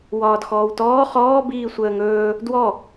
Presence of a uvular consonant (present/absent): present